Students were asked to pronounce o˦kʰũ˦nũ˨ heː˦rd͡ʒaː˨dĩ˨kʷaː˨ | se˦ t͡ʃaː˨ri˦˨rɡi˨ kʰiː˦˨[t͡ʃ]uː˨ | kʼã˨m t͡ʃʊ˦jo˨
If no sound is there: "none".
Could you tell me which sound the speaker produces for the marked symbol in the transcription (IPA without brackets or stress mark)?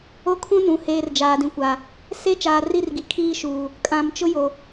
ʃ